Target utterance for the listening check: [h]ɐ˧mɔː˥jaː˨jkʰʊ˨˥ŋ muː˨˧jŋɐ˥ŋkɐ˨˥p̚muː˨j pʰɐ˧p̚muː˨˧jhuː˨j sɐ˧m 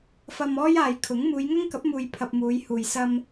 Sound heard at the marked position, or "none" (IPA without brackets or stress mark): f